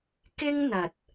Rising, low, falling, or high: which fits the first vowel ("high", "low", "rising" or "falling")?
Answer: high